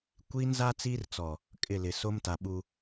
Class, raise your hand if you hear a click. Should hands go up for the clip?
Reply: no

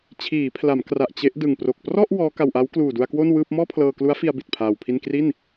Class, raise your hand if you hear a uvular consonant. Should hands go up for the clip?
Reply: no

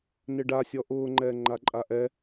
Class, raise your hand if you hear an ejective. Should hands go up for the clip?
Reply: yes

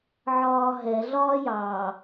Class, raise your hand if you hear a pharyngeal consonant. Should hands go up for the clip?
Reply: yes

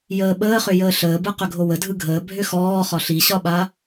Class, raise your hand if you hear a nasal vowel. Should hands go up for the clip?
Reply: no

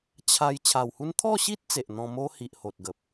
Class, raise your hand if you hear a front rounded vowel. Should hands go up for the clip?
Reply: no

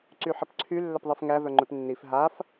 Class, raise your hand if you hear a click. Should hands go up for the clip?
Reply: yes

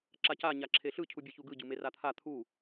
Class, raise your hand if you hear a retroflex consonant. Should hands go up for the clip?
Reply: no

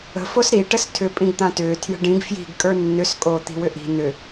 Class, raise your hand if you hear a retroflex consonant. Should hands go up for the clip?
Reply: yes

